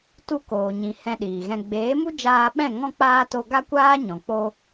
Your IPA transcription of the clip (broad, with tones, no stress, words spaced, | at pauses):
tu˧koː˨ɲĩ˨ hɛ̃˧ɗiː˨ɣɛ̃˧ ɡ͡beː˨˦mu˦d͡ʒaː˧ɓɛ̃˦˨ ŋɔ̃˧k͡paː˧ to˧ɡa˦kʷaː˦ ɲɔ̃˨k͡po˧